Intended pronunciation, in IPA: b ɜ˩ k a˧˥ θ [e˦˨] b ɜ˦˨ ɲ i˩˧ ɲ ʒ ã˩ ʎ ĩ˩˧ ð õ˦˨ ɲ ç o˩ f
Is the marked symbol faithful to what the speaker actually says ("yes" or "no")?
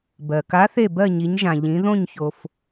yes